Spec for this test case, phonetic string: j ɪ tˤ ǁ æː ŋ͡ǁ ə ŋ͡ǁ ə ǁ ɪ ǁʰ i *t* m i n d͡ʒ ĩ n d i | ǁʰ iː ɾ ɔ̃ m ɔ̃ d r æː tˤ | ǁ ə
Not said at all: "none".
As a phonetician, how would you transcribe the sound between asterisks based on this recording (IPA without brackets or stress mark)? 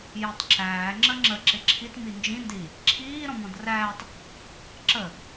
t